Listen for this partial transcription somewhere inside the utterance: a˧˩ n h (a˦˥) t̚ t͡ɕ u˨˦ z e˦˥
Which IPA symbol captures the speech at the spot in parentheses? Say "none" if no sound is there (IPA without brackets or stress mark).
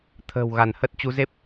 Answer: ə˦˥